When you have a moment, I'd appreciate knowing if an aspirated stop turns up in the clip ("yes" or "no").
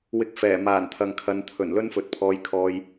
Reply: yes